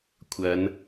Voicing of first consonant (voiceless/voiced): voiceless